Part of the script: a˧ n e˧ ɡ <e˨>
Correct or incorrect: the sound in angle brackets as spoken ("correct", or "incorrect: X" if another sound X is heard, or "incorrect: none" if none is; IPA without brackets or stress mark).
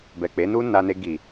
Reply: incorrect: i˨